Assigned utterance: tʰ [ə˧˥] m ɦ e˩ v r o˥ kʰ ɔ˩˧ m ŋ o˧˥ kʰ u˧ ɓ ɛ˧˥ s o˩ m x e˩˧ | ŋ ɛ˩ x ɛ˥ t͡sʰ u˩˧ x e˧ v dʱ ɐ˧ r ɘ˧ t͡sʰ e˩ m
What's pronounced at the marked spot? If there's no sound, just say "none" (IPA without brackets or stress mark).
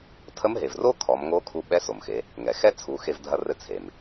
ə˧˥